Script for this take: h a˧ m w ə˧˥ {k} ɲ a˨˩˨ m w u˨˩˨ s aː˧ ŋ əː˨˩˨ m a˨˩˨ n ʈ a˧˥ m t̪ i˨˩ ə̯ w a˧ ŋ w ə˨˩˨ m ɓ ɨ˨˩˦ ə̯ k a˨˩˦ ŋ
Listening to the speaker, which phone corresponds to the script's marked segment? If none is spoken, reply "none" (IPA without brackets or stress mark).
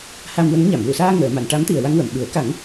ŋ